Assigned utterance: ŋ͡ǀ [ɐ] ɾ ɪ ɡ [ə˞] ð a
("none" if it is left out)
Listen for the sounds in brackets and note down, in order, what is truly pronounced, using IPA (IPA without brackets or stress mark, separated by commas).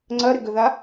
ɐ, ə